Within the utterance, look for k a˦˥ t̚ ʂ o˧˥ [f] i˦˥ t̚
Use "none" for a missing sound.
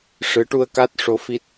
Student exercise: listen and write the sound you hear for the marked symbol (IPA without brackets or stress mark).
f